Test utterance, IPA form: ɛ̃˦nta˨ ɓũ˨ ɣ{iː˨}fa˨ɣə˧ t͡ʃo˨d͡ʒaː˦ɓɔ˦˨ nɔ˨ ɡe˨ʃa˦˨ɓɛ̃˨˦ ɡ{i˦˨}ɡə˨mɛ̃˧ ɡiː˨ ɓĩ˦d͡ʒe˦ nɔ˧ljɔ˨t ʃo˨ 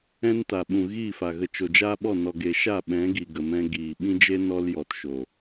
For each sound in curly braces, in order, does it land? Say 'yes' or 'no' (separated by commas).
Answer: no, no